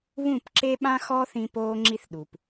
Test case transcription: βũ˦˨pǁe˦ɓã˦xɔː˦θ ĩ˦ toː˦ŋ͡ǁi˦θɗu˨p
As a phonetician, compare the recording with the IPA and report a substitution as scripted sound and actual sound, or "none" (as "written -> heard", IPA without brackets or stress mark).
t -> p